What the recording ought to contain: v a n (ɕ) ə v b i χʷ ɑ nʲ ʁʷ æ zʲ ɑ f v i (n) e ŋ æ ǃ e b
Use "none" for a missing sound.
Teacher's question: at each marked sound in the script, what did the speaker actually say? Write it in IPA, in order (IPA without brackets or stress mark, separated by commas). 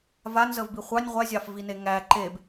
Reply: z, n